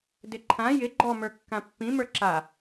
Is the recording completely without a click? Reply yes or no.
no